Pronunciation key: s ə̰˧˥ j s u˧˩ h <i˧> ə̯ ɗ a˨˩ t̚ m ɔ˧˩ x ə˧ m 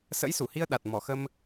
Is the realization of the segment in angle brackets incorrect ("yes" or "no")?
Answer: no